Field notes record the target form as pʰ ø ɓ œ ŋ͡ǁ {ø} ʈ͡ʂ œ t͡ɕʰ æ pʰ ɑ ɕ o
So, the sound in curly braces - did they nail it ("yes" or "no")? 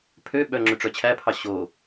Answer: yes